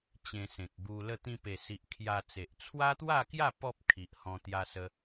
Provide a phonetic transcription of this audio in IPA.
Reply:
t͡ɕẽ˧sẽ˨k̚ bu˧lə˥˧ t̪ĩ˧pe˨˩si˨ʔ kʰja˧t͡se˨ʔ t͡sʰwa˦t̪wa˥˧kja˥˧ pɔ˦p̚ kʰi˨ʔhɔ̃˧ t̪ja˧sə˧

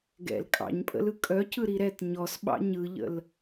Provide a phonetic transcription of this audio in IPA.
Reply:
ɡɛ̰l kʼɑ̰ɲpʼə̰lɯ kʼœcɯɾi ɾɛt ɲɔsɓɑ̰ ɲɯʎə̰l

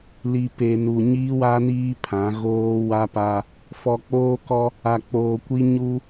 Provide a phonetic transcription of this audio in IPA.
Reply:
li˨pe˨ nu˨ɲiː˦wa˦ niː˦pʰã˨˦ ɣoː˦ wa˦pa˦ | fɔ˨k͡poː˦kɔ˦ | a˨k͡poː˨kʷi˦ ɲu˦

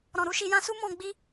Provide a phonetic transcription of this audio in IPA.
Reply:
ɾɔ̃˨ɾu˧ʃi˧ jã˧su˦ mɔ̃˧ɡ͡bi˦

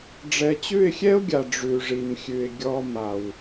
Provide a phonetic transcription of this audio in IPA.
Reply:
ɖ͡ʐɛ˨t͡ɕʉ˦˨ɪ̯xʲɛ˦ʊ̯ɡʲa˨ ɖ͡ʐʉ˨ʐi˨mxʲʉ˨ɪ̯ ɡʲɔ˦ ma˨w

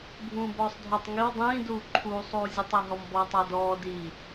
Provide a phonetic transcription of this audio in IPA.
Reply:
bʱũːbɔːsˤdʱɔtˤ ŋiw dˤĩːduː ǃʰuːsˤuː zʲətˤi ɦɔmbɔːtˤadɔː di

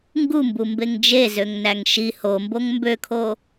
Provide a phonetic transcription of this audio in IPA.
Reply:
ŋɡumbu mbeŋd͡ʒe zøŋnæŋʃi homboŋ mbøkʰo

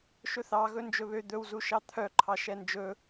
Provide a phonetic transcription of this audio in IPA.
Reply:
ʃɵθɑ ɣɵnd͡ʒɵβø d̪ɵwzu ʃɑt̪ʰœǃʰɑ ʃɛnd͡ʒɵ

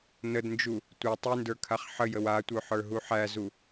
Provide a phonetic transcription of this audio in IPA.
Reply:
nədnd͡ʒu | tʷə˞ tˤyndə˞kʰaχ ħəjəw atʷœħə˞ɦu ħæzu

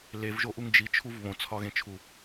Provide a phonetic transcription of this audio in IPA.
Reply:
levʒoʔuŋ d͡ʒit͡ʃʰuv βõt͡sʰɒɣẽt͡ʃʰu

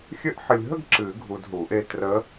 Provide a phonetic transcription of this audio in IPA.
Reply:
xʲɘ˥˧ʔ ħɨ˨lʲɦə˥˧ɡ ǁɨ˨˩˦ɡʱu˨d ɦu˨˩˦ʔe˥˧ trə˧˥

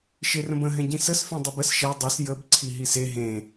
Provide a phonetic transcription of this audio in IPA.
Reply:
ʃerə̃bə̃ ɦɛ̃ɟĩsəsfẽ dˤibəs ʃɛ dˤɛs jəb ǀʰiɦise ɦẽ

